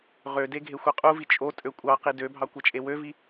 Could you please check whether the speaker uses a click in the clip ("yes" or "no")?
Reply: no